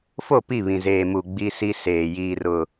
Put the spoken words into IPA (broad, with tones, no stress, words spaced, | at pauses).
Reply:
fo˦˨pi˦˨βĩ˨ zeː˨mu˨ ɡ͡bi˦si˦seː˨ jiː˨rʊ˨